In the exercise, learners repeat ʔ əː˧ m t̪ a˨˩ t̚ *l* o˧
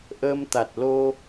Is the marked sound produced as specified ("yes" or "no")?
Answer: yes